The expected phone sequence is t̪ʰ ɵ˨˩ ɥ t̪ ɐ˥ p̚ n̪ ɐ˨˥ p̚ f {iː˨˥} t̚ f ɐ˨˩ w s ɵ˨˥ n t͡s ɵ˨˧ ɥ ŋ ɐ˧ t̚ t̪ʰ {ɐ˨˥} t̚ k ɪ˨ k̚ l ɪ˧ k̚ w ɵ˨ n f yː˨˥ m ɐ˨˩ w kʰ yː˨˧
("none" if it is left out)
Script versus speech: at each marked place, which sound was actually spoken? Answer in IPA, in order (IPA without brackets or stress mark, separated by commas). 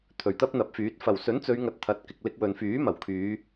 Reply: yː˨˥, ɐ˨˥